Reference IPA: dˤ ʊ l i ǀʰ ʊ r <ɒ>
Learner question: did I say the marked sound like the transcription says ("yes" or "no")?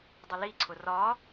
no